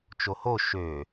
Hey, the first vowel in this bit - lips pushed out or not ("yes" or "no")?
yes